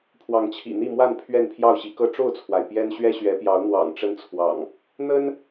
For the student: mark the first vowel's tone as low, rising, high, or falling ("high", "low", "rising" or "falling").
rising